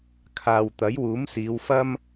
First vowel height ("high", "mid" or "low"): low